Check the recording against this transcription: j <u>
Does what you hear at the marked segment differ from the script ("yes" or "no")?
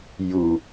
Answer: no